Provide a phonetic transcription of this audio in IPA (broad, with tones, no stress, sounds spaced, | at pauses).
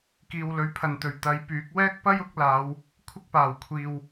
k iː˨ w l ɵ˨˧ ɥ pʰ ɐ˨ n t̪ ɵ˨ ɥ t̪ ɐ˨˧ j p yː˨˥ k̚ w ɛː˥ k̚ p ɐ˥ j ʊ˨˥ k̚ l aː˨˧ w | kʷʰ ɪ˥ k̚ p aː˨˩ w kʷʰ iː˨ w